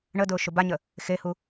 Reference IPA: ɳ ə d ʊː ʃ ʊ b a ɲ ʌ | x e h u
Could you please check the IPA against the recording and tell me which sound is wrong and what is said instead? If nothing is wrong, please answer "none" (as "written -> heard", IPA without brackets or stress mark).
ʌ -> ə